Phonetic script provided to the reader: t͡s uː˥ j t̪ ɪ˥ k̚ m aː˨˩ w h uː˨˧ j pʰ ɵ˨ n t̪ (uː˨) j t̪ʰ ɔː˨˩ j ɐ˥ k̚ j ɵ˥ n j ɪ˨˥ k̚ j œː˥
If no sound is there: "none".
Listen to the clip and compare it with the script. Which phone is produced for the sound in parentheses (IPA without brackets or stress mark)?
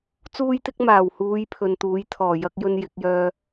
uː˨˥